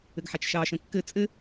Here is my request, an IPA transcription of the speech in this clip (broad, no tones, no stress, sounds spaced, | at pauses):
ɘ ɡ ħ a t͡ʃ ʃ ɑ ʃ ə̃ kː ɘ t͡sʼ ɘ